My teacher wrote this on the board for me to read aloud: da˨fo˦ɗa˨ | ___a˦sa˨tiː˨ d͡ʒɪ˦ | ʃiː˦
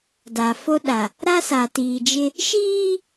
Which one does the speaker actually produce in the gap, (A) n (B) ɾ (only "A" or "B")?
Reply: B